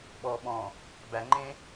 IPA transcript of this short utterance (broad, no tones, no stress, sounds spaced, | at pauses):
ɓ ɔ ɓ ɔ̃ | b æ ŋ͡ǃ ẽ